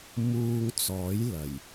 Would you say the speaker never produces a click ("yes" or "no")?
yes